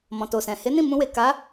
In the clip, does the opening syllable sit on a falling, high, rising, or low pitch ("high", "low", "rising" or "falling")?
low